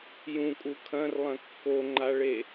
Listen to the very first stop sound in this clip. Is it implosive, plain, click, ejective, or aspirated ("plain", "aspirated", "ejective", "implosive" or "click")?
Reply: ejective